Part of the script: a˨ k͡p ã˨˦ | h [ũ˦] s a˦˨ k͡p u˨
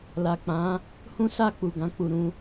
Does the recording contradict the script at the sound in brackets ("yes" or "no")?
no